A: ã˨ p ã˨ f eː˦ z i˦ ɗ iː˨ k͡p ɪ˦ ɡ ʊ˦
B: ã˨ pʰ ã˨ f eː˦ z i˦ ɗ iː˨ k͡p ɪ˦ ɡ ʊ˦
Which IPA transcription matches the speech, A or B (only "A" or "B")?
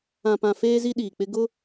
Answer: A